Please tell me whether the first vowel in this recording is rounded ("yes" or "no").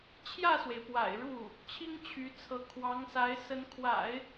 no